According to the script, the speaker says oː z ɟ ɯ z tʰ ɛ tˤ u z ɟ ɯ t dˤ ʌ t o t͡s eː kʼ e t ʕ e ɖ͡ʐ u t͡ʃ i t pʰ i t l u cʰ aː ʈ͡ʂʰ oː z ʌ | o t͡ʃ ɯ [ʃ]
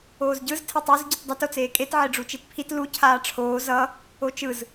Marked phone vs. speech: incorrect: z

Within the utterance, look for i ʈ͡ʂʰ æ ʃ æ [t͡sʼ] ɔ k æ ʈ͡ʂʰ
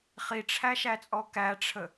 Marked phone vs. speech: correct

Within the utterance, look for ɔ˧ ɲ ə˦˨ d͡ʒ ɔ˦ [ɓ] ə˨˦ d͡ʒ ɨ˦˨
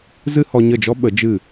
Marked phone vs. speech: correct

